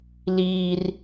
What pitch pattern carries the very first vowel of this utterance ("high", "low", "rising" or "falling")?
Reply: high